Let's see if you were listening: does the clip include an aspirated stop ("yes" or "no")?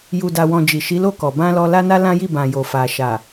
no